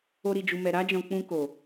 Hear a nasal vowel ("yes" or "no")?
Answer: yes